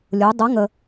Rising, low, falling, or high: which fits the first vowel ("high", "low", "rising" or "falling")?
rising